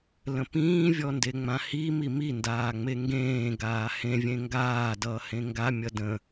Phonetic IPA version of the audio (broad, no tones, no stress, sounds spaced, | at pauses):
l ə̃ p ĩː vʲ ɔ n d e ŋ͡m ã h i m i m i n d aː ŋ͡m e ŋ ɡ ẽː ɡ aː h ẽ vʲ ẽ ŋ ɡ aː d ʌː h ẽ ŋ ɡ a mʲ ʌ d ə̃